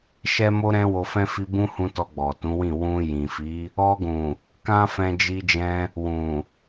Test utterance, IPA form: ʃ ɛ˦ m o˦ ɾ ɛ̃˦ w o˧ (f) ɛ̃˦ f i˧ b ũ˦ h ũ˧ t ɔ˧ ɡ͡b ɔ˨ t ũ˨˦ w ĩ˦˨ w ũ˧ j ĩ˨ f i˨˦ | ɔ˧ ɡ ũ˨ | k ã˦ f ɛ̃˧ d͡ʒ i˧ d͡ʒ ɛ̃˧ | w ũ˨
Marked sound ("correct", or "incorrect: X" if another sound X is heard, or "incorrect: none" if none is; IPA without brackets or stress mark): correct